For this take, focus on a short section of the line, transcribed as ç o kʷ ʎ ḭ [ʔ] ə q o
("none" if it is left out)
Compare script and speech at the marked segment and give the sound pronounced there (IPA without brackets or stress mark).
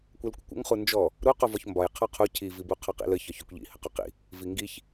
h